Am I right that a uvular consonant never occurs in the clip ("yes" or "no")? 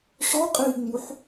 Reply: no